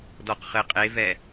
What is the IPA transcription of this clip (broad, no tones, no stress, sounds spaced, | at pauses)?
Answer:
d ɔ q χ ɘ qʼ e v ɛ